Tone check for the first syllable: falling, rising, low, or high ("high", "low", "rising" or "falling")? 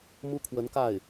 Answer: high